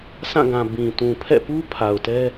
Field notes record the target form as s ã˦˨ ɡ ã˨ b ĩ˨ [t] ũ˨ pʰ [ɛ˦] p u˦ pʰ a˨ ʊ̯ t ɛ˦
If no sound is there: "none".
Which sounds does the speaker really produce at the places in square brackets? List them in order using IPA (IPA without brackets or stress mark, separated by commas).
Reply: t, ɛ̰˦˨